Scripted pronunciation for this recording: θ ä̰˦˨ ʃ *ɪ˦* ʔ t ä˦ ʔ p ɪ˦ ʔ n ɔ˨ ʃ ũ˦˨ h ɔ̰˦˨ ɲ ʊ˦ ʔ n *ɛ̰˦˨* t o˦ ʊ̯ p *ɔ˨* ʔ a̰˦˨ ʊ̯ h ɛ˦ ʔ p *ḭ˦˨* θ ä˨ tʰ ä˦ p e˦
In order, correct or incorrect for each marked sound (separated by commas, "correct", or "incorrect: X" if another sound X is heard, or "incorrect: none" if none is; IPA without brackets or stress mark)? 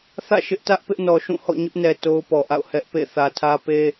correct, incorrect: ɛ˨, correct, incorrect: ḛ˦˨